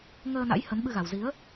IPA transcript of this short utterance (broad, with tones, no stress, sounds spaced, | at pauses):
ŋ əː˧ n a̰˧˥ j h ə˨˦ n ɓ ɨ˧ ɣ a˨˩ w z i˨˦ ə̯